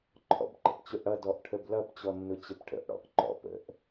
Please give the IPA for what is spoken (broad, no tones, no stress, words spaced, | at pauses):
ǃʰɔ̰bǃə̰pt͡ɕʊʔɽʌ dɔʔʈʰəblʌp t͡ɕɔnːʊt͡ɕəpʈʰə̰ʔ ɽɔ̰ʔǃɔ̰ pə̰ʔ